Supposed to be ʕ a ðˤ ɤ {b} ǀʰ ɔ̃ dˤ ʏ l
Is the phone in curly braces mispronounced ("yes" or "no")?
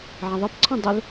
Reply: yes